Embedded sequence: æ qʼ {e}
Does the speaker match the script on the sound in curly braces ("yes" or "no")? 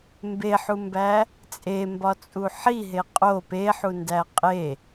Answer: yes